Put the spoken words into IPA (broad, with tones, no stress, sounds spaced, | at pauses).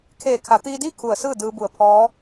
kʰ eː˧˩ kʰ a˩˧ t̪ iː˧ d iː˥˨ kʰ u˧˩ ə̯ s ɯː˥˨ d ɯː˧ b u˧˩ ə̯ pʰ ɔː˧˥